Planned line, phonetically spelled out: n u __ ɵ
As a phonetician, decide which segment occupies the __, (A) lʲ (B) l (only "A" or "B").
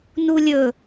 A